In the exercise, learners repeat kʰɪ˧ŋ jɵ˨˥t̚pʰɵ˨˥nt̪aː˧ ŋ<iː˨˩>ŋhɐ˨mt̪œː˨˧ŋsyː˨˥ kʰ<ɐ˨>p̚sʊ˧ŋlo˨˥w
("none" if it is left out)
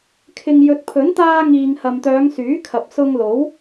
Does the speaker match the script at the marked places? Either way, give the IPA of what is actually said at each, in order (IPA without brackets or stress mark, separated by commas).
iː˨, ɐ˨